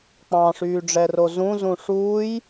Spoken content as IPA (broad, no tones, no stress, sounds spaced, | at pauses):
k͡p ɑ̃ ʂ yː ɖ͡ʐ ɛ r o z ũ z ũ ʂ uː j